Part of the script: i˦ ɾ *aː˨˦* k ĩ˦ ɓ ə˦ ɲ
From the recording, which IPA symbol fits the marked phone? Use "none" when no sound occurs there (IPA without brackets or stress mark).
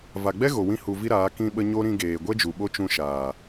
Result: aː˨˦